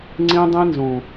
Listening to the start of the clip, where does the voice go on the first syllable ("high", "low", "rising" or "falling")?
high